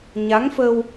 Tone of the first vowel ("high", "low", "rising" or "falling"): rising